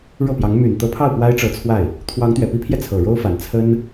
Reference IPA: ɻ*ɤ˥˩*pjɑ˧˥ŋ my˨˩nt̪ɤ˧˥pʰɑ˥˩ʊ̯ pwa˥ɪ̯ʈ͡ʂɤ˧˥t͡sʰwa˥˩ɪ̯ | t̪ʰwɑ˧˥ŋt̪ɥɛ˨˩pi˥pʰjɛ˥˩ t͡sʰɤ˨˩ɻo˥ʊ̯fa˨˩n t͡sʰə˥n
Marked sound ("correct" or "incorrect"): correct